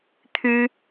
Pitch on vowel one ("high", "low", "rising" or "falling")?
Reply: high